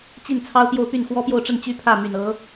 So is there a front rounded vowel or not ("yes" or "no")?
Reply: yes